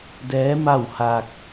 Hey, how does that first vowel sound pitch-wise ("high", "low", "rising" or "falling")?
rising